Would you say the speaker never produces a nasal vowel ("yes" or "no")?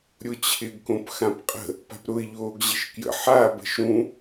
no